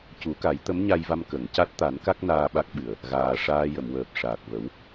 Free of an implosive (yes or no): no